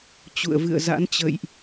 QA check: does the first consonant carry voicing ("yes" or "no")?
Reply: no